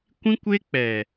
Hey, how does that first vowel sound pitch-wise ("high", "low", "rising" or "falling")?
high